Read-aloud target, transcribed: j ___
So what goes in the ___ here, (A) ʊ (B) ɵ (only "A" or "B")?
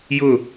A